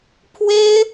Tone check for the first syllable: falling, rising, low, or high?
high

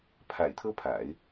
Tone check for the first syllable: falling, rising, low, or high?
low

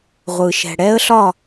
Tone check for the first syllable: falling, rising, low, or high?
low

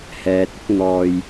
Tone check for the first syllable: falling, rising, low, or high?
low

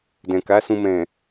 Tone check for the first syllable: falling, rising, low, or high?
low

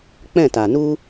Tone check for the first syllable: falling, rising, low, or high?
falling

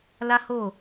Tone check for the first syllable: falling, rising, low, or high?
high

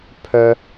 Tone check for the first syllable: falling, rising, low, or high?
high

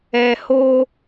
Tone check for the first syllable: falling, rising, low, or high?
low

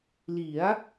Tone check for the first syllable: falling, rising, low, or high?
rising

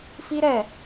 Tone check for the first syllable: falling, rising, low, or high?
high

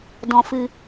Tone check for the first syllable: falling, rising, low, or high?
low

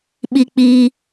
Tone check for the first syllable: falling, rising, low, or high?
high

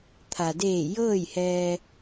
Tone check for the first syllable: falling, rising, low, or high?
low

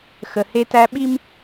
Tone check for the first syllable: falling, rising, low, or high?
low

